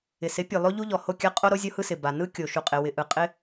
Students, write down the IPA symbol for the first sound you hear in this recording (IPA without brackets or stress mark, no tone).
ɪ